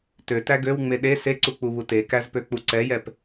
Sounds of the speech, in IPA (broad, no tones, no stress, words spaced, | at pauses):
tøtæ ɡøwŋ͡me ɗe seǀuk͡puβu tekæzpøk͡pu ǀɛjɛp